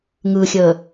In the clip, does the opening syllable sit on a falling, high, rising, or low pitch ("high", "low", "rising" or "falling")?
low